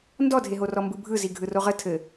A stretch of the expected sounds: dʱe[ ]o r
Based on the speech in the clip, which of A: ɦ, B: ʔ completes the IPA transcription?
A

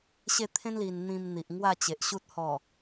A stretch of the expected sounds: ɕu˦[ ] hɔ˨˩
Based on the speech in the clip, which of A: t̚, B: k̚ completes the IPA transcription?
A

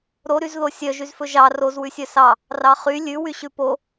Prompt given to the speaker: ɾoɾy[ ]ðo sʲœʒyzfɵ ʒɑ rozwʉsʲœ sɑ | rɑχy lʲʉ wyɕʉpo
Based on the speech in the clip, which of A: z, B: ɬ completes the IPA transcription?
A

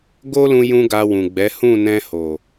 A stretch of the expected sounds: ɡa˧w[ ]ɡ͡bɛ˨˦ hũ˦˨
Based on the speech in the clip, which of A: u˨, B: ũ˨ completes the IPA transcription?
B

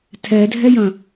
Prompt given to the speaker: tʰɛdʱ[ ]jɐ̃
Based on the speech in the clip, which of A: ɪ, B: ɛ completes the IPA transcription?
B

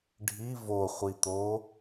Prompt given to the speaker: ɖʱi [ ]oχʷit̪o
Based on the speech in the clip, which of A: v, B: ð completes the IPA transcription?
A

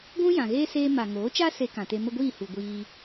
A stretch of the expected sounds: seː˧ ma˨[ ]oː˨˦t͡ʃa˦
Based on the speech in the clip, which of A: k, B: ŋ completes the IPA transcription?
B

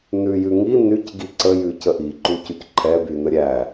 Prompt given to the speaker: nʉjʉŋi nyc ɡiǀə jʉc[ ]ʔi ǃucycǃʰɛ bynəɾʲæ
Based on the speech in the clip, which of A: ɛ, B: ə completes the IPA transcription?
B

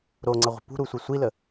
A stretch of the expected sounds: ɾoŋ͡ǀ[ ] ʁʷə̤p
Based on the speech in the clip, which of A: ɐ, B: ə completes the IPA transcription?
A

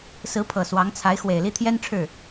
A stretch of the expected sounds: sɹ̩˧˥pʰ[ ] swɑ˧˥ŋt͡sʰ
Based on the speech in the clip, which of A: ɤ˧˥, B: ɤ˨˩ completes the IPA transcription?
B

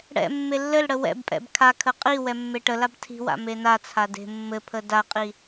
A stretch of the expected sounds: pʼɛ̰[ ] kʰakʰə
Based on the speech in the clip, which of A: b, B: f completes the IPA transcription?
A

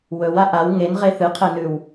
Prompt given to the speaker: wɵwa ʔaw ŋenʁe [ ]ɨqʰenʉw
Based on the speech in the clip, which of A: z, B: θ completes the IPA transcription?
B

